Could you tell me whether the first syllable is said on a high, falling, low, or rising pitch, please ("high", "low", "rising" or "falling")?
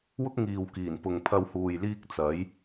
high